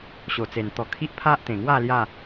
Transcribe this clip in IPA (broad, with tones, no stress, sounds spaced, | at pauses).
ɕ o˨˩ t͡s e˨˩ n t̪ ɔ˧ kʰ i˦ ʔ pʰ a˦ ʔ t̪ ẽ˨˩ ŋ w a˥˧ l j a˥˧